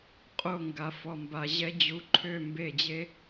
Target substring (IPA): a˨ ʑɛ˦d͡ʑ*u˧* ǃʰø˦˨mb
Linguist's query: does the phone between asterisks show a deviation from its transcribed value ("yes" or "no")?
no